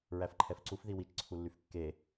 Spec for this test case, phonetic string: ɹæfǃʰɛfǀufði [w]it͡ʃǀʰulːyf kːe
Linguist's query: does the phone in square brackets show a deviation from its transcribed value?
no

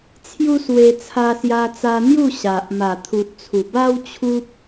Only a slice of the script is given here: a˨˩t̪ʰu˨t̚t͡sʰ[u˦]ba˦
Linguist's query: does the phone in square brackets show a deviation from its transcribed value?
yes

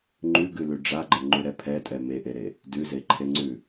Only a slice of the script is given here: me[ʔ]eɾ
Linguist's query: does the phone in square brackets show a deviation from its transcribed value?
no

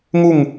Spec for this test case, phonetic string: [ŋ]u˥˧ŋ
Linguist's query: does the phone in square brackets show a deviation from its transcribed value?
no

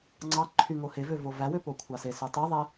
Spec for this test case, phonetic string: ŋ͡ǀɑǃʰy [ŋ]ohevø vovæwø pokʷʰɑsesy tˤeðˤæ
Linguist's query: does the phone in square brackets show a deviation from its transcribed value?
no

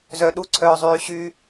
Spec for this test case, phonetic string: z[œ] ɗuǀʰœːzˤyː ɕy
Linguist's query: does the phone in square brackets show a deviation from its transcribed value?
no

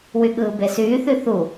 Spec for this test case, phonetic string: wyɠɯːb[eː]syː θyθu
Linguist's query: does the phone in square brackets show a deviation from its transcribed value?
yes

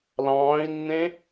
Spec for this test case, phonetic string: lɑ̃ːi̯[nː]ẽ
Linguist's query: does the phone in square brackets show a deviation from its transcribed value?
no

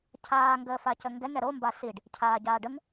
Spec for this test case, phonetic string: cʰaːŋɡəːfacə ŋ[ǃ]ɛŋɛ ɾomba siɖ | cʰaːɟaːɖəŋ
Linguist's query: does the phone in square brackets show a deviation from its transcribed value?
yes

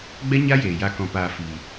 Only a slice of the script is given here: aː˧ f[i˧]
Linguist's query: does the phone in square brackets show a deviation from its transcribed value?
yes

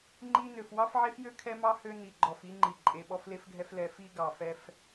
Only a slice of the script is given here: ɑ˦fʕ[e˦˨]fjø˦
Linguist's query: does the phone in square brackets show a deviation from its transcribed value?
yes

